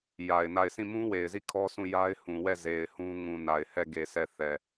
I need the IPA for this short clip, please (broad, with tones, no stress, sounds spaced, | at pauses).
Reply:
j a˨ ɪ̯ n a˦˨ ɪ̯ s ĩ˦˨ m ũ˦ w e˨ ɪ̯ z i˦˨ kʰ ɔ˦ s ũ˦˨ j a˦ ɪ̯ h ũ˨ w ɛ˦˨ z e˨ ɪ̯ h ũ˦ ŋ ũ˨ n a˨ ɪ̯ h ɛ˦˨ ɡ e˨ s ɛ˦˨ θ ɛ˨